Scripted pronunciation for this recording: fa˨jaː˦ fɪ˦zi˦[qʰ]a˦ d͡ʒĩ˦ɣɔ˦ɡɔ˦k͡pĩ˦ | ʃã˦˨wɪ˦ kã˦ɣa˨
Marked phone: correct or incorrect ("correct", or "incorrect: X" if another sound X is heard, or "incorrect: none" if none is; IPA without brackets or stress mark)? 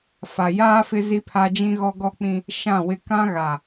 incorrect: pʰ